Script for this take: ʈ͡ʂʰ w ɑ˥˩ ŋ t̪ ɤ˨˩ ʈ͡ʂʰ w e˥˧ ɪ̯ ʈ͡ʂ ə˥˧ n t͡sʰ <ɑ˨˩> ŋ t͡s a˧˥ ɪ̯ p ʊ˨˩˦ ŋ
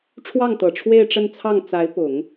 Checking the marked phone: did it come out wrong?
yes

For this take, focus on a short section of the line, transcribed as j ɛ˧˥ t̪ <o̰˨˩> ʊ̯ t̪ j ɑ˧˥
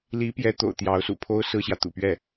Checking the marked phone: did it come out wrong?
no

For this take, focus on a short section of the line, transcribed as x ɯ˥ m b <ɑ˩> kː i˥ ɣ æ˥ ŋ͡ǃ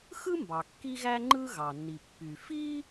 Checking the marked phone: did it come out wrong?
no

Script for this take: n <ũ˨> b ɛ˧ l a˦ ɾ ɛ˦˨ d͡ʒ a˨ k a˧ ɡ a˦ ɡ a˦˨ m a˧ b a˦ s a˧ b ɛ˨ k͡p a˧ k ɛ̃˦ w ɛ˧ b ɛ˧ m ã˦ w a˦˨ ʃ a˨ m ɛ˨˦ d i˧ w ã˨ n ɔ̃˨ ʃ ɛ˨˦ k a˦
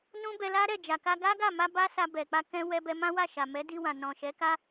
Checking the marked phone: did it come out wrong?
yes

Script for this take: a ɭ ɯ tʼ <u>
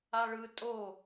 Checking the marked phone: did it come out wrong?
yes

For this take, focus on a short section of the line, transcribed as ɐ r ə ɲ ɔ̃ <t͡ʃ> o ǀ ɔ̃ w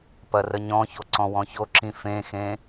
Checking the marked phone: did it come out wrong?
yes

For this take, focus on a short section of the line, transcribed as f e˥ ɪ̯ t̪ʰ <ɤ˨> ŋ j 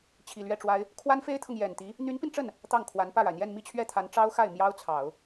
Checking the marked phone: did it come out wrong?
no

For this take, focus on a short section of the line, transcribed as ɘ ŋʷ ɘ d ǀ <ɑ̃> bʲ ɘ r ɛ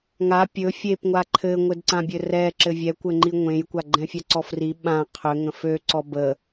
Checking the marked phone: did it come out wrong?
yes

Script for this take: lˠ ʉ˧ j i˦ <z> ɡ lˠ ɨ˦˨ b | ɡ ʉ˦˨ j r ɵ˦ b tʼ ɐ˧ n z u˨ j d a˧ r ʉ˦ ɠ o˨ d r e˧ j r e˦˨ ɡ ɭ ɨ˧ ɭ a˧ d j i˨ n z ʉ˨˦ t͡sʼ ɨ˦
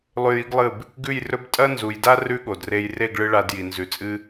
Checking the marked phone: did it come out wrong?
yes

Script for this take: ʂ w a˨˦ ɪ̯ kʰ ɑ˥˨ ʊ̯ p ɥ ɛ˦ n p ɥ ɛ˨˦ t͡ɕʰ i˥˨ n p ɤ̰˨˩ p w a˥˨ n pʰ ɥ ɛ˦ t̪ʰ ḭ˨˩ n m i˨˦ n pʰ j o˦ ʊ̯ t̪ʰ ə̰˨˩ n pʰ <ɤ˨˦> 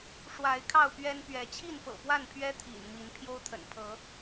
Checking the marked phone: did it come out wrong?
no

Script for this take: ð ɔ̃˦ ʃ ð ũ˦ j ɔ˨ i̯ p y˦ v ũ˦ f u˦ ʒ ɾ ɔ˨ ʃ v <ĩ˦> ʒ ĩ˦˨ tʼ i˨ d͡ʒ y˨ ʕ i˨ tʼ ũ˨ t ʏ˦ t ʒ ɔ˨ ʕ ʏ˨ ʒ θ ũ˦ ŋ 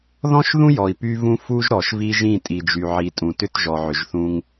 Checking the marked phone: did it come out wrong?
yes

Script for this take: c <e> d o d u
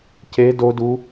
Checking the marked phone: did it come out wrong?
no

